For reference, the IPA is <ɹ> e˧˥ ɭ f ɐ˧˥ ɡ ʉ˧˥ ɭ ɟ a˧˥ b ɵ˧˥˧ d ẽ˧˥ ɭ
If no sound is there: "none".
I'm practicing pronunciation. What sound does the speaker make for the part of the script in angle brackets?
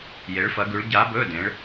j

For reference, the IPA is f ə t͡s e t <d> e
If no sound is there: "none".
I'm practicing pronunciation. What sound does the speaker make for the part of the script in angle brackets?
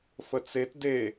d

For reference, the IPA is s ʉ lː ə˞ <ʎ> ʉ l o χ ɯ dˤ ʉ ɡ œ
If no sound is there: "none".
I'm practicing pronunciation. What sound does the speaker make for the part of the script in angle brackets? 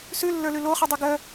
l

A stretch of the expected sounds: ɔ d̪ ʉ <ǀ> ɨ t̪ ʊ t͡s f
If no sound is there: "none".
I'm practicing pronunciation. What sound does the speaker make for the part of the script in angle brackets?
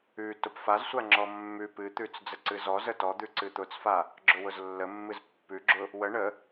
ǀ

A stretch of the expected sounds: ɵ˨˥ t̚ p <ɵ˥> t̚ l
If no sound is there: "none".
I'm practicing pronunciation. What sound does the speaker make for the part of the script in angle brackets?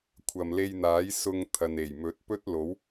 ɵ˥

